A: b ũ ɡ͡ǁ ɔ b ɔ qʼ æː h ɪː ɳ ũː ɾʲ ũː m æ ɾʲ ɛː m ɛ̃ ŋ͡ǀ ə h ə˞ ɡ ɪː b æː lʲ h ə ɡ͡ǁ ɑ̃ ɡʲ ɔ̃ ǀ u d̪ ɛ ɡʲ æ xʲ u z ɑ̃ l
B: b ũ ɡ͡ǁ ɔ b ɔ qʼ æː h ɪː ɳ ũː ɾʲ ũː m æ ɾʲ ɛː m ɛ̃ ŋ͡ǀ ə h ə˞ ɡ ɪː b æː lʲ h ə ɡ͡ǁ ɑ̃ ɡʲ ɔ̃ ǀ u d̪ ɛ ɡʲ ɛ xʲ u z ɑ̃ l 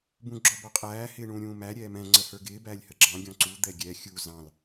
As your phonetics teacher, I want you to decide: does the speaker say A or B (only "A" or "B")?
B